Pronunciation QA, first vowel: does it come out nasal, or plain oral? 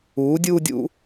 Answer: oral